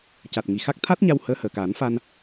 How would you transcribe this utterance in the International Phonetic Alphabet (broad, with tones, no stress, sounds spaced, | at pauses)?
c a˨˩ t̚ ŋ i˨˩ x a˦˥ k̚ t̪ʰ a˦˥ t̚ ɲ a˧ w h əː˧˥ h əː˨˩ k aː˨˩˦ n f a˧ n